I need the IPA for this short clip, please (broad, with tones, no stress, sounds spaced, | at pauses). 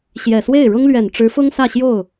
ɕ j ɛ˨˩ s w e˥˩ ɪ̯ ɻ ʊ˥ ŋ l ɥ ɛ˨˩ n ʈ͡ʂ ɻ̩˧˥ f ʊ˥ ŋ s ä˥˧ ɕ j o˥˩ ʊ̯